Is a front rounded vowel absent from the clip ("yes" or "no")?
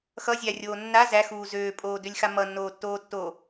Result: no